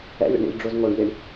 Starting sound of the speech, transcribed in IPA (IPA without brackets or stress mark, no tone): ɛ̰